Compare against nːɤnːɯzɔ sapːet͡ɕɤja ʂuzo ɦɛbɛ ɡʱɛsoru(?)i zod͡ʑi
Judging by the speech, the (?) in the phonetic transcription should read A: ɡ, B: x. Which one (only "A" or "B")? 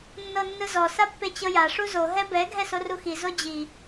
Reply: B